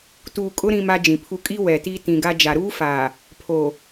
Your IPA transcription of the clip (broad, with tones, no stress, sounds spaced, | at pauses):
t uː˨ kʼ ʊ˦ ɾ ĩ˦ m a˦ d͡ʒ ĩ˨ pʰ u˦ kʼ i˦ w ɛ˨ t i˦ t ĩ˨ ɡ a˦ d͡ʒ a˨ ɾ uː˦ f aː˨ | pʰ o˨